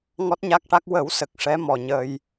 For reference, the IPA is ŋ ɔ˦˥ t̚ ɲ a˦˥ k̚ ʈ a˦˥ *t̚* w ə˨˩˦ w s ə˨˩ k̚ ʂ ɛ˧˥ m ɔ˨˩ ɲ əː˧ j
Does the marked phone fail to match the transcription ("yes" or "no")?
yes